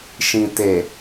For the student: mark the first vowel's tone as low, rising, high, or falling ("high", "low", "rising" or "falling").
low